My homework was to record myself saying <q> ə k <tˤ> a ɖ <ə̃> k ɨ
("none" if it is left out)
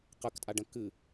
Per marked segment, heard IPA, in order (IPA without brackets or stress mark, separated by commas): q, tʼ, ə̃